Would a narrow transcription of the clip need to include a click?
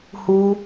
no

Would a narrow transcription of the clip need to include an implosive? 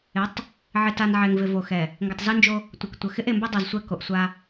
no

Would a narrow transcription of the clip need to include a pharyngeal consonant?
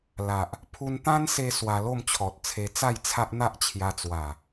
no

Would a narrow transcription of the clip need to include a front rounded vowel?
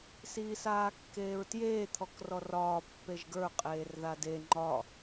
no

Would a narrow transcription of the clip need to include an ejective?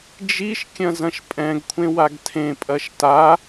yes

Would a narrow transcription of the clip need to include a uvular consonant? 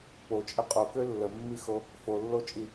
yes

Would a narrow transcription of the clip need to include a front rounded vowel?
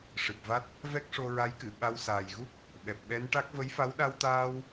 no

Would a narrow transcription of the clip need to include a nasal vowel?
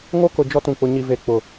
yes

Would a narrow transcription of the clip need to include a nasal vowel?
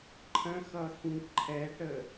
yes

